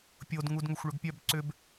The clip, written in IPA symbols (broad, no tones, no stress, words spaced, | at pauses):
pʲod ŋudŋʏxʷɭʏɡpʲœb ǀʏb